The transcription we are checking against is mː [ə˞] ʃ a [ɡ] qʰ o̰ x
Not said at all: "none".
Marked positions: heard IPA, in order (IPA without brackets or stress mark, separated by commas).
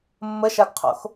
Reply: ə, ɡ